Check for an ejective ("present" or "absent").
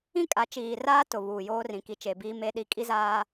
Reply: present